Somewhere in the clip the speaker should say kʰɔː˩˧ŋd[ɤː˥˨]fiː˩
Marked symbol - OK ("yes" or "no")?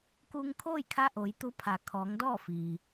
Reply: no